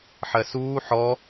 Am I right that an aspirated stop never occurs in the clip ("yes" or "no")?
yes